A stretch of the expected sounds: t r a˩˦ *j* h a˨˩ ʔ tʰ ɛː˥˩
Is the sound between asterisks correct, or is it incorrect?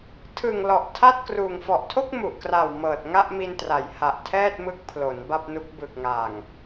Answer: correct